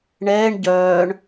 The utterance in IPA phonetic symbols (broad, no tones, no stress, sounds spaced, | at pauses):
ɳ ɛː ɳ ɟ œː ɳ